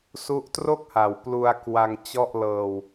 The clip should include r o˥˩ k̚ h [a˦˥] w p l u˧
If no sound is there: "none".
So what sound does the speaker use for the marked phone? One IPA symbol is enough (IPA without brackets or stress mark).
a˨˩